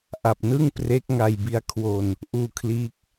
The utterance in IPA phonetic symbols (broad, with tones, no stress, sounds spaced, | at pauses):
ʔ a˨˩ p̚ n ɯ˥˩ ŋ p r e˦˥ k̚ ŋ a˧ j b i˦˥ a̯ kʰ w o˧ n | ʔ uː˧ kʰ l iː˦˥ k̚